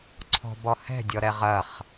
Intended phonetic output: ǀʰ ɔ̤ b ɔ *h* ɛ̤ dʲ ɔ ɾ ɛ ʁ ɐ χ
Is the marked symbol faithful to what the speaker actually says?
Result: yes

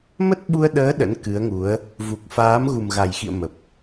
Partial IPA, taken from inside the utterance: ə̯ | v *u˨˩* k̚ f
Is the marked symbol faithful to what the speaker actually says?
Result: yes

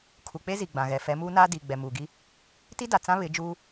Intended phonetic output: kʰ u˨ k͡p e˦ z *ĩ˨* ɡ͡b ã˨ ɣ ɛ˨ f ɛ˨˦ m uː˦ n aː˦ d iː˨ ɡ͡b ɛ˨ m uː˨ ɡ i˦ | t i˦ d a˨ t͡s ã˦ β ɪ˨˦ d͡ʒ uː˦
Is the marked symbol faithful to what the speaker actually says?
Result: no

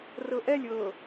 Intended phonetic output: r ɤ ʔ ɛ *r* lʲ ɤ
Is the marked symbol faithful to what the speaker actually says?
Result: no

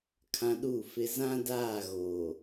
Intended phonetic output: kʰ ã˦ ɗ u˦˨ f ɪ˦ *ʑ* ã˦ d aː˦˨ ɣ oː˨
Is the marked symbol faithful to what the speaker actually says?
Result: no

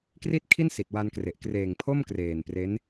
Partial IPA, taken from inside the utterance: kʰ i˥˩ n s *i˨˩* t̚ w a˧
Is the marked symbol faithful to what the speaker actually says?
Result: yes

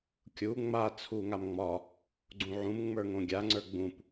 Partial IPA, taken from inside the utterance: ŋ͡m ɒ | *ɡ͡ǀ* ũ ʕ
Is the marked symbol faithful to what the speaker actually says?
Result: yes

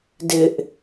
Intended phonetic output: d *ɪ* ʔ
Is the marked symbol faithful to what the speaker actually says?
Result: yes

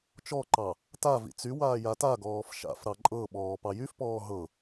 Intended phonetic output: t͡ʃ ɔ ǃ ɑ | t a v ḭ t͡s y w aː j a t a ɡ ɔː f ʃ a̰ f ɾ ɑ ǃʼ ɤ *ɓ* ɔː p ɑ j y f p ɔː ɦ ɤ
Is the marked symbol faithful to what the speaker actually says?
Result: yes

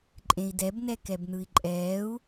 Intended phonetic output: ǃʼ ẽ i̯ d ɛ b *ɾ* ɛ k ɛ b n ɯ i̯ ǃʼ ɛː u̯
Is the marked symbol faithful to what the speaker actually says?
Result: no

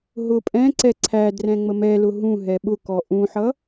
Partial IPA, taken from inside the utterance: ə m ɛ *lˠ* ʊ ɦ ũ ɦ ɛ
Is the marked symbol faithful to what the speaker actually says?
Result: no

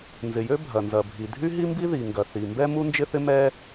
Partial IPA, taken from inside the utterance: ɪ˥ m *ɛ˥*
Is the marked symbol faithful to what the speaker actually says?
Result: yes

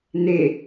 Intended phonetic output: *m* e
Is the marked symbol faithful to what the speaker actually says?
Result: no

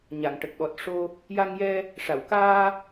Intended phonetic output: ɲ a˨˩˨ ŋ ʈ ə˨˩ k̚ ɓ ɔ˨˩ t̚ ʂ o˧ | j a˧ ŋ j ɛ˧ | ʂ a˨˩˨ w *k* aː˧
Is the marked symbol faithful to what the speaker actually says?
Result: yes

